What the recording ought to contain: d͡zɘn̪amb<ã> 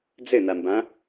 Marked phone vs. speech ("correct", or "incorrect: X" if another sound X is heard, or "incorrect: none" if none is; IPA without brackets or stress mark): correct